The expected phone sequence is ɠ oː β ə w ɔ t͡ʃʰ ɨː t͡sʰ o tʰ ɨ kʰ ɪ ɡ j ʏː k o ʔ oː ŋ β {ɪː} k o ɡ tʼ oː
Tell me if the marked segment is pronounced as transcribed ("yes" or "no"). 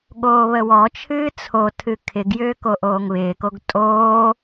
yes